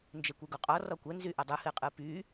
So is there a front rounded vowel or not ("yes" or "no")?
yes